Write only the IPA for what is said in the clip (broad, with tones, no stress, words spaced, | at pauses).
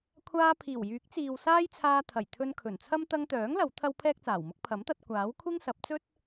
kʷʰaː˧pʰiː˨˩wjyː˨˥k̚t͡siː˨w saː˥jt͡sʰaː˧t̪ʰɐ˨˩jt̪ʰɵ˧n kʰɵ˨˩nt͡sʰɐ˥m t̪ɐ˧ŋt̪œː˨˥ŋlɐ˨˧w t̪ʰɐ˥wpʰɛː˥k̚t͡saː˨˩wmʊ˥k̚ pʰɐ˨˥mt̪ɐ˧t̚ kʷaː˨˥w kʷʰɪ˥ŋsɐ˨˥p̚t͡sɵ˥t̚